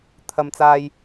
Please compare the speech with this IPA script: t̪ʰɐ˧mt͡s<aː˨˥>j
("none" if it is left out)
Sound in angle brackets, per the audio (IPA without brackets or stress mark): aː˧